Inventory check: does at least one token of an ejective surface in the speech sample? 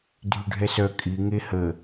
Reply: yes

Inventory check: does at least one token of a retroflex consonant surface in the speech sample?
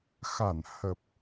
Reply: no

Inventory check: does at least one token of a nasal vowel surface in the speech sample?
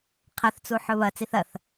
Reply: no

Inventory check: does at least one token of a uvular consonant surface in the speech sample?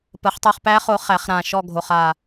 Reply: yes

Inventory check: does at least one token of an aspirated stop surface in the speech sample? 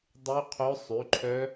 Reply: yes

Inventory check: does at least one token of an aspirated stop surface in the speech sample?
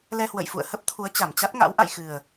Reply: yes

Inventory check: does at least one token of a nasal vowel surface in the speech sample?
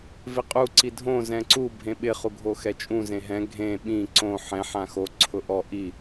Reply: yes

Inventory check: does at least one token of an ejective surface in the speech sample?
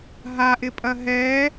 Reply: yes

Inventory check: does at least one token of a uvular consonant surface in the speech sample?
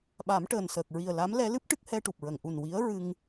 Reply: no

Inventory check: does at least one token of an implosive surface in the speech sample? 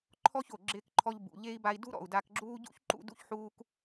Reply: no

